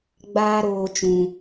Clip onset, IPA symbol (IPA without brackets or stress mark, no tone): ɡ͡b